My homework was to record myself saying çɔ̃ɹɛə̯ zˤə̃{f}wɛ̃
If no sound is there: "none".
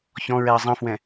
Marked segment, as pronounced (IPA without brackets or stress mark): f